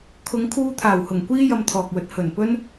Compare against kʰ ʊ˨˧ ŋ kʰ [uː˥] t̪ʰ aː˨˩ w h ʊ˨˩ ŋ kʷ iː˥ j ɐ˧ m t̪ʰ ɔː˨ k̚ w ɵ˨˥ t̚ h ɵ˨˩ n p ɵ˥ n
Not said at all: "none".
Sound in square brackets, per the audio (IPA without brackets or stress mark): uː˧